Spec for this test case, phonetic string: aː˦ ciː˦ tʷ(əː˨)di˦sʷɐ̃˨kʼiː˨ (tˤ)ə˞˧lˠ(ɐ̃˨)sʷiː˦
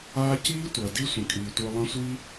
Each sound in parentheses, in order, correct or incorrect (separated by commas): incorrect, incorrect, incorrect